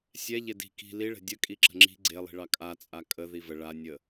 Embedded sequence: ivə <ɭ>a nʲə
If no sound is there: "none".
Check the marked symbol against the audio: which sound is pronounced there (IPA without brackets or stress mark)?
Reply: ɭ